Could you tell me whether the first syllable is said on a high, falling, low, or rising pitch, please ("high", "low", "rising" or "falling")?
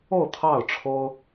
falling